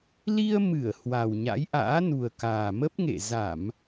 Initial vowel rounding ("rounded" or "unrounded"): unrounded